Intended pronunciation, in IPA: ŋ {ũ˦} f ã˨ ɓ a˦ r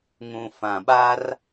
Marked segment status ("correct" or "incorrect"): incorrect